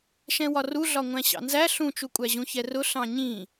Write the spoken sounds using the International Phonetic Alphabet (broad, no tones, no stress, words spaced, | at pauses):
ʃɛ̃wɒruɮɒ ŋʷæ̃ɕɑ̰nzæ ɬũt͡ʃukʷʼæʑũ çɛrʊ ɬɑ̃ɲĩ